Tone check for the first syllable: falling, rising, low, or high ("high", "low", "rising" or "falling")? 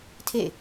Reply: falling